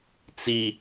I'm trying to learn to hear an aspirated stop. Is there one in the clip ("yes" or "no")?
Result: no